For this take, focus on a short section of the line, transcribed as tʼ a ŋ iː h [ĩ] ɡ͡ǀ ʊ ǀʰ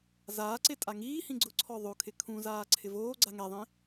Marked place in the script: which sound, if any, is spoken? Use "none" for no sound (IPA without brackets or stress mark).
ĩ